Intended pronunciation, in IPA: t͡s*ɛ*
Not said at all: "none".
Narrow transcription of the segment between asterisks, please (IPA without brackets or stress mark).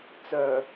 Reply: œ